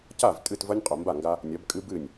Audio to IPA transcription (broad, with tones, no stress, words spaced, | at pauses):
ca˥˨v tʼɨ˥˨tvɐ˦nʲ qʼo˨mba˥˨ŋɡa˦ | nʲɐ˨˦bkʼɨ˦bɨ˥˨nʲ